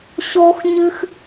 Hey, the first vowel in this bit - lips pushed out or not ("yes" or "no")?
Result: yes